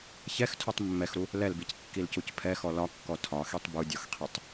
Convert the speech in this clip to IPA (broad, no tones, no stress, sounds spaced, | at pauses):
ç ɛ x tʰ u tˤ mː ɛ x ɾ u | l ɛ l b i c kː i l c u c pʰ ɛ x ɔ l ɒ kː ɔ tʰ ɒ x i tˤ b u dʲ ɔ x qʰ i tˤ